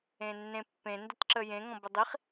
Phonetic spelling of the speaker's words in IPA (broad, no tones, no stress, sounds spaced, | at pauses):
ẽ nː ẽ pː ẽ n d ə t ǁ ə j ẽ ŋ ɔ̃ b ə dˤ i χ